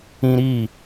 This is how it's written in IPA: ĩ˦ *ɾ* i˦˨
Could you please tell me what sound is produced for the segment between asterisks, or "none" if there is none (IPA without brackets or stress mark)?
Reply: ɾ